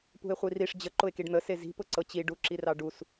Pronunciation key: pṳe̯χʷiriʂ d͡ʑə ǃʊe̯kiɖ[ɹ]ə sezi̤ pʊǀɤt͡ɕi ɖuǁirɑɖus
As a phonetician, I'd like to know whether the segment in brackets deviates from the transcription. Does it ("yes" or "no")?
yes